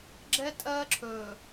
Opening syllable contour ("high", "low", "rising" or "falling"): high